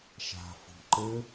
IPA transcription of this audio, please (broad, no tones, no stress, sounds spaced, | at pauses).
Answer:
ʃ a̤ f o̤ ǃ ɘ